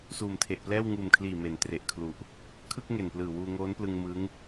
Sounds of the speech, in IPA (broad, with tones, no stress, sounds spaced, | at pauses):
s uː˨˩ m tʰ e˨˩ ʔ p l ɛː˥˩ w ŋ uː˨˩ m kʰ l iː˨˩ m e˩˦ n t r e˨˩ ʔ kʰ l u˨˩ ʔ | kʰ ɯ˥˩ k̚ ŋ e˨˩ n p l ɯː˨˩ w uː˧ ŋ oː˦˥ n p l ɯ˧ ŋ m ɯ˦˥ ŋ